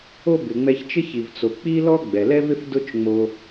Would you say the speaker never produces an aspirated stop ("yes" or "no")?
yes